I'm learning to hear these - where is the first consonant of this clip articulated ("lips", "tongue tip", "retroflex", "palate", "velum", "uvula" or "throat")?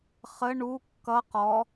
uvula